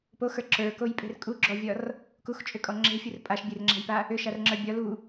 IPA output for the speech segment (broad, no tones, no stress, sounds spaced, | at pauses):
p o x ə˞ ǁ ə˞ k o j pʼ e̤ r kʼ u ɡ͡ǁ ɔ vʲ ɒ r | k u x t͡ʃʼ ʏ kʼ ɔ ŋ͡ǁ e̤ fʲ u r pʼ a ʃ bʲ e r ŋ͡ǁ a̤ j p a | ʏ ʃ a r ŋ͡ǁ ə˞ bʲ ɒ l u